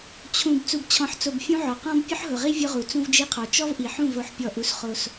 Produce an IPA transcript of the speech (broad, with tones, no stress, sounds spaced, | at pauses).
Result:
t͡ɕʰ ũ˨ b t͡s u˨ b t͡ɕʰ ɔ̃˨ ħ t͡s o˨ b fʲ ũ˦ ʕ ɔ˨ q ɔ̃˦ b pʲ ʊ˦ ħ ɦ ʊ˨ ʁ i˦ vʲ ʊ˦ ʁ u˨ t͡s ũ˦ v d͡ʒ i˦ qʰ ɔ˨ t͡ʃ ɔ˦ v ʔ i˨ ħ ũ˦˨ v o˦ ħ pʲ ɔ˦˨ ʔ u˦ s χ o˦ s